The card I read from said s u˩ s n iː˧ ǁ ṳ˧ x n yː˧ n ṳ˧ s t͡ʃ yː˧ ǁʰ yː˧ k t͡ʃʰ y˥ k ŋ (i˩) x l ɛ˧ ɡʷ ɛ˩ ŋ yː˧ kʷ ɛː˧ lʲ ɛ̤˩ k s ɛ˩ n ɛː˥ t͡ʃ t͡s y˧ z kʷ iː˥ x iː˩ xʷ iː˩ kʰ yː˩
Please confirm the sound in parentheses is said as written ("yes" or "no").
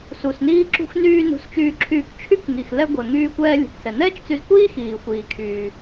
yes